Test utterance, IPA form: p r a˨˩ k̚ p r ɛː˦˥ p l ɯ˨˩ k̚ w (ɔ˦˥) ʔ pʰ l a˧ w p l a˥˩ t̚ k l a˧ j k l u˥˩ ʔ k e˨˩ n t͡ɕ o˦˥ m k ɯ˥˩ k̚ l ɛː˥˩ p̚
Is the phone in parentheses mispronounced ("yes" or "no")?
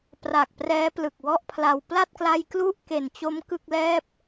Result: yes